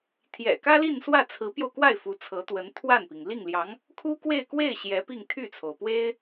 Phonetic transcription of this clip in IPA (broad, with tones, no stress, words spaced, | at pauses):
t̪ʰjɛ̰˨˩kä˥li˥˧nswä˥˩ t͡sʰɹ̩˧˥pjo˧ʊ̯kwa˥˩ɪ̯ fu˧˥t͡sʰɤ˧˥t̪wə˧˥n t̪ʰwa˥˩npi˩ŋ li˥˩ŋljɑ˧˥ŋ | kʰu˥kwe˥˧ɪ̯kwe˥˩ɪ̯ ɕjɛ˧˥pi˥˧ŋ t̪ʰy˥˩t͡sʰo˩ʊ̯ pwe˥ɪ̯